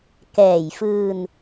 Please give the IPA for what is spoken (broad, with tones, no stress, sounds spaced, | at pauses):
k ɛː˨˩ j f ɯː˧ n